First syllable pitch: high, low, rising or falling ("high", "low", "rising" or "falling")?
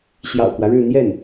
low